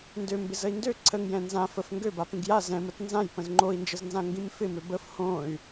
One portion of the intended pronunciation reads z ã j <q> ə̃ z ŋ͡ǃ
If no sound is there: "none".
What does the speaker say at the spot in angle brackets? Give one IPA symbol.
p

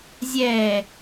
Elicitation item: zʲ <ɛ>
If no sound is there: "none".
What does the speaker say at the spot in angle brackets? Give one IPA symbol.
ɛ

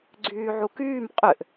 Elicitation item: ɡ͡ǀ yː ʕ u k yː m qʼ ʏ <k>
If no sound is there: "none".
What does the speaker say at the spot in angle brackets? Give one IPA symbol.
ʔ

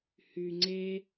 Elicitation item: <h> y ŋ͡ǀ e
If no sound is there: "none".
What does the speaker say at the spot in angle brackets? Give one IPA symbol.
h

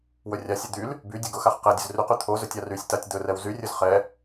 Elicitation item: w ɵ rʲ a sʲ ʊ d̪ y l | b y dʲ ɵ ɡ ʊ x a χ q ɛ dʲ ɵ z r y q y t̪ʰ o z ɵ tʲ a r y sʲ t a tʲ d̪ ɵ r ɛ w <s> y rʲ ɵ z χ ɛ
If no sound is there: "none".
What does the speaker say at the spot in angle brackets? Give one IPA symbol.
z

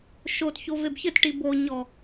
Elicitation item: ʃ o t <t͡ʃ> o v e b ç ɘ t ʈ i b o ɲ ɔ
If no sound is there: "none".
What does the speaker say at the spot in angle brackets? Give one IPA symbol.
ç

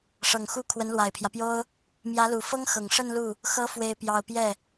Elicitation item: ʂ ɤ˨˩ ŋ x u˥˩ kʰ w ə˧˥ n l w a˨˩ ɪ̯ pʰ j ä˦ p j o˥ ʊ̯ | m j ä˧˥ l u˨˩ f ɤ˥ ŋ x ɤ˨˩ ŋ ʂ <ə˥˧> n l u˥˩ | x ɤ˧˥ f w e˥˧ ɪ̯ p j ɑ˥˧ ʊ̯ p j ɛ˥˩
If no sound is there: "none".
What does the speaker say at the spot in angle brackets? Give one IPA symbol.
ə˥˧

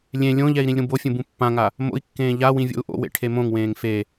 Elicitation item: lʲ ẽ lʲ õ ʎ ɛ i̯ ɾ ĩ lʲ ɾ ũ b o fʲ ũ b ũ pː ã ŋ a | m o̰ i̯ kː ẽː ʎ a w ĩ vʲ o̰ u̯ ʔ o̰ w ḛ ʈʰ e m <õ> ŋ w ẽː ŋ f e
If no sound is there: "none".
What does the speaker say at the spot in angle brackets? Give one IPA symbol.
õ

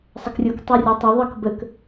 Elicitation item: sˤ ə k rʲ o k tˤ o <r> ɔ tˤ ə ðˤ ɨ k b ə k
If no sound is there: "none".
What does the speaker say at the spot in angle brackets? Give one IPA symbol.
rʲ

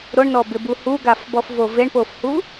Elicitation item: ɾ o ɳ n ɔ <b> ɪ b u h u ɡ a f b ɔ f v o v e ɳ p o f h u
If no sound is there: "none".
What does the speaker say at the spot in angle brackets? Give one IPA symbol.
b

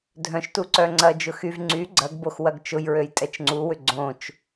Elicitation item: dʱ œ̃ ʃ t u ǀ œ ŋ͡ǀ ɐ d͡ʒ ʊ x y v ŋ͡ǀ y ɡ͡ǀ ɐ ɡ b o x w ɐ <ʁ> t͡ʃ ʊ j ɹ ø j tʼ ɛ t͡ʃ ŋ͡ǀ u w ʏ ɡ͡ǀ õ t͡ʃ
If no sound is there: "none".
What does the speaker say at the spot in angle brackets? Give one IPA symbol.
ɡ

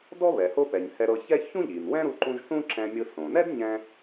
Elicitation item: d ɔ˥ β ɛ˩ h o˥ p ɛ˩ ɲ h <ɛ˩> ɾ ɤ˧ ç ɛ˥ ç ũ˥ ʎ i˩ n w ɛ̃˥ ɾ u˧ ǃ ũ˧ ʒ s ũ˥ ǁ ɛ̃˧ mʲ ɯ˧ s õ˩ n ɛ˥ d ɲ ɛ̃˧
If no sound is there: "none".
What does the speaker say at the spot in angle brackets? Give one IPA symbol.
ɛ˧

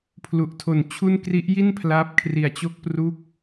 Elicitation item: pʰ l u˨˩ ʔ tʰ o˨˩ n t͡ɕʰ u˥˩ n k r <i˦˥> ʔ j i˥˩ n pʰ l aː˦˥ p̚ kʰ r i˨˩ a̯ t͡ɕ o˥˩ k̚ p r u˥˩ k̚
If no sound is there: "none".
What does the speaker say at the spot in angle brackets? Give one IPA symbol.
i˦˥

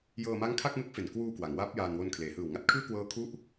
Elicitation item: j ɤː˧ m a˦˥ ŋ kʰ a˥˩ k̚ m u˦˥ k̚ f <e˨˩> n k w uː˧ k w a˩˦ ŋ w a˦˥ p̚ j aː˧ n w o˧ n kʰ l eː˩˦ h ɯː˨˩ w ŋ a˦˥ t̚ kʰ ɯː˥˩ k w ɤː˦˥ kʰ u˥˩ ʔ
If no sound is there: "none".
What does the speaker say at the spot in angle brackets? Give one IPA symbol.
e˨˩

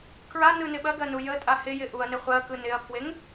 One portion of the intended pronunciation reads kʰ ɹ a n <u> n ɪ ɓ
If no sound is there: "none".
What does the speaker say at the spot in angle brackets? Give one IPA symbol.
ɯ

